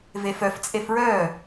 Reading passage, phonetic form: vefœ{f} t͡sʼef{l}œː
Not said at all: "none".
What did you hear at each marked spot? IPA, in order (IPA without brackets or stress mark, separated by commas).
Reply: f, ɹ